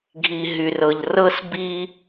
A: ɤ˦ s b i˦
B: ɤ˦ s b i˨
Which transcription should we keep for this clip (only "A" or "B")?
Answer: A